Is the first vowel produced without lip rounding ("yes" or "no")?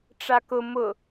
yes